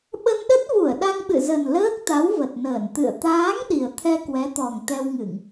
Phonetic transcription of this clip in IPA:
ɓə˧nɗə˦˥t̚vu˧˩ə̯ ɗa˧ŋɓɨ̰˧˨zə˨˩n ləː˦˥k̚t̪a˨˦w və˨˩t̚nəː˧˩n t̪ɨ̰˧˨ə̯ t̪aː˨˦ŋ ɗi˨˩ə̯t̪ʰɛ˧kwɛ˨˦t̪ɔ˨˩ŋ t̪ɛ˧wŋɨ˧˩˨ŋ

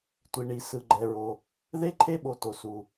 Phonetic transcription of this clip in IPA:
tʷi˩ɳi˩ sɯ˩ɡ͡ǃɛ˩ɹo˩ | ðe˥ǃʰe˥ɓo˩to˩ su˩

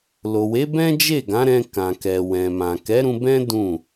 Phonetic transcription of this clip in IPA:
lo˨we˨˦bɛ̃˦ d͡ʒe˦˨ɡã˨˦ɾɛ̃˧ kã˨kɛ˨ wɛ̃˨mã˨ kɛ˨˦ɾũ˧bɛ̃˦ dũ˦˨

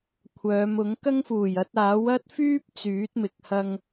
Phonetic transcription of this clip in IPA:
kʷʰœː˨˧mʊ˨˥ŋ kɐ˥ŋfuː˨˩j ɐ˧t̚aː˨˥w ɐ˥t̚fyː˥p̚ t͡syː˨˥t̚mɪ˨k̚ hɐ˧ŋ

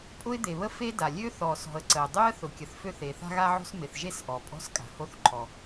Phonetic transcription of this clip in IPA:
pʼʊ˥ɪ̯d̪e˩βə˥ fe˥da˩ lʲø˥θɔ˩sɔ̤˩ə̯ ǀə˩ʊ̯ dˤø˥ə̯ θʊ˩kʲə˩θ fø˥θe˩ θa̤˥ɣa˥ʕo̤˥s mɪ˩θʒe˥s ʔɔ˩pʼɔ̤˥s kʼa̤˩ho˥θǃʰɔ˩

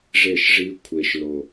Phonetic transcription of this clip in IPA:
ʐe˥˨ʃʐi˦˥ kʷʰe˨˩ʃlo˨˩

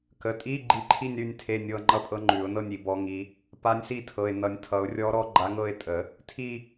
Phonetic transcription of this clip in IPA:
kə˩˧˩tʼi˧˥˧ ɡ͡ǃi˧˥ǃʰi˥˧nʲ ɾʉ˥˧nʲtʰe˧˥˧nʲɤ˧˥˧ ŋ͡ǃʌ˥˧pʼɤ˧˥ŋ͡ǃʉ˨˩˦ʊ̯nɤ˥˧nʲ i˨˩˦bɔ˧˥ŋi˧˥ | pa˧˥nʲsi˥˧tʰɤ˩˧˩ɪ̯ nʌ˨˩˦nʲtʰʌ˨˩˦ʊ̯rʲɔ˧˥ɾɔ˧˥ ɡ͡ǃa˧˥ŋɤ˥˧ɪ̯tʼə˨˩˦ | tʰi˥˧

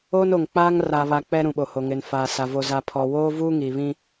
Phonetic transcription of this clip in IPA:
oː˦no˨ŋk͡paː˦ŋ ra˨βa˨ k͡pɛ˦ɾũ˨ɓo˨ho˨ ŋɪ˨nfaː˨sa˨ vo˨za˨pʰɔ˨ woː˦vuː˦ ŋiː˨βĩ˦

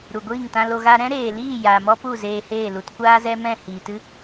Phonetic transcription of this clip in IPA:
ɾu˨ɡʷiː˦˨ŋtã˧lo˧ ɣa˧ɾɛ̃˦ɾeː˨liː˦˨ jaː˨mɔ˦pu˦˨ zeː˧heː˦˨lu˧t kʷaː˦zɛ˦ mɛ̃˦˨hiː˨tɨ˦

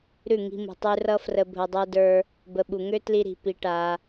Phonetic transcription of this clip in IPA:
ɾʉ˦˨ŋi̤˧mṳ˨ tˤʉ˧rʌ˦frə˧ bʱə˧dˤə˞˦də˞˦ | bə˨ɓu˨ ŋø˦ tli˧ɾi̤˨ pi˧ʈa˧

